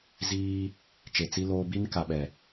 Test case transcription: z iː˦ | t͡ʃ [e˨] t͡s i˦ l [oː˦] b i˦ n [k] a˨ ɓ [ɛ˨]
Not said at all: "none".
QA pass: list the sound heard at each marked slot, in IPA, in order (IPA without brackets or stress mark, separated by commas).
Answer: e˨, oː˦, k, ɛ˨